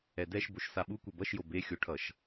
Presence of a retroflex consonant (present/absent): present